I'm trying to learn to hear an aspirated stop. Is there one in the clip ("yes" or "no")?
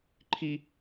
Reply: yes